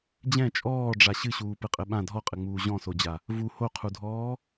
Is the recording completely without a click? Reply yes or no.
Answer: yes